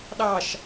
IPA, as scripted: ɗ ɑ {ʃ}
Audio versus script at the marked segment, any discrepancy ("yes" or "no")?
no